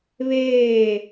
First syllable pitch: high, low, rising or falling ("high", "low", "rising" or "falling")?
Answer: falling